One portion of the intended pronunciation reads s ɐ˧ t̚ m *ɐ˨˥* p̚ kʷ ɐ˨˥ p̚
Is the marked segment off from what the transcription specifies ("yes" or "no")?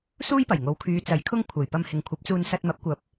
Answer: no